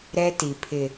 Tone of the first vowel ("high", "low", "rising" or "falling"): high